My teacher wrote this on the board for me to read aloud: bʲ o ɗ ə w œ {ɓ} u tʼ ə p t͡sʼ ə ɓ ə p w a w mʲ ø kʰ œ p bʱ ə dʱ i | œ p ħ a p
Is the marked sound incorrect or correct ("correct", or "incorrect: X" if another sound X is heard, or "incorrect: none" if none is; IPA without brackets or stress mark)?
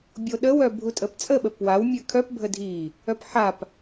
incorrect: bʱ